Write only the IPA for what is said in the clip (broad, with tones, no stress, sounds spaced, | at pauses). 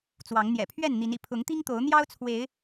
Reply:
t͡s w ɑ˨˦ ŋ n̪ j ɛ̰˨˩ pʰ ɥ ɛ˥˨ n n̪ i˨˦ n ḭ˨˩ pʰ ʊ˨˦ ŋ t̪ i˦ ŋ t̪ o˨˦ ʊ̯ n̪ j ɑ˦ ʊ̯ t͡sʰ w e˨˦ ɪ̯